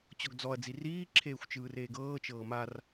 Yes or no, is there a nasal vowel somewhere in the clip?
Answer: no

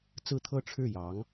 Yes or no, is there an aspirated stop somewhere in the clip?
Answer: yes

